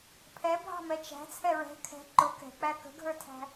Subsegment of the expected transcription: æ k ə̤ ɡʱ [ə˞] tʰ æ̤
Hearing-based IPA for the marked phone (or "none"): ə˞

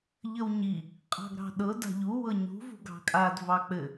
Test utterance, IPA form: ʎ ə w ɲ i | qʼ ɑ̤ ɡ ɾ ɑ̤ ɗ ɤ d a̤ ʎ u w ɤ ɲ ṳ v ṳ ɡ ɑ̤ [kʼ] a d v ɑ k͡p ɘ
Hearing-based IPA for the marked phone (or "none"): kʼ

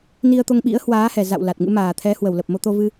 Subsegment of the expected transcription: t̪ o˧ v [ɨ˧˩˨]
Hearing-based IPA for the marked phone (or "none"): ɨ˧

